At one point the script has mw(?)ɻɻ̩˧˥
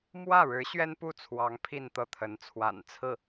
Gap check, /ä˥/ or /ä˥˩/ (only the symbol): ä˥˩